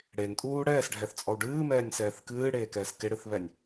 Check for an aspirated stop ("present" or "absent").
absent